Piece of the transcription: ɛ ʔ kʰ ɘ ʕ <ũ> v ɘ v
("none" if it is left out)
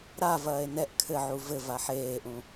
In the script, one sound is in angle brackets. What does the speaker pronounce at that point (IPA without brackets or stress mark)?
u